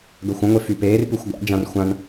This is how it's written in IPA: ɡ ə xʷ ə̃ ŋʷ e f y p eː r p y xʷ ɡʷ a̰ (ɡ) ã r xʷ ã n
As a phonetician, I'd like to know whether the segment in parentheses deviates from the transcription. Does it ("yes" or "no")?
yes